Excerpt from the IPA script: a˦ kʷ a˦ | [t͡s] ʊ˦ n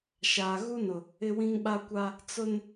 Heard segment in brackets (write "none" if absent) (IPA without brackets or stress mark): t͡s